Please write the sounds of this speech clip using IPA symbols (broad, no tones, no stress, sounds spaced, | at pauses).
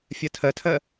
fʲ ɜ tʰ ɜ tʰ ɜ